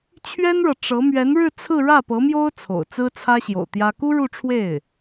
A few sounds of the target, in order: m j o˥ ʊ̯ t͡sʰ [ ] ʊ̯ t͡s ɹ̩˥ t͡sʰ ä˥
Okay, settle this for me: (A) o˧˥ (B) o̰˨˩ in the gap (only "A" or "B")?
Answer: B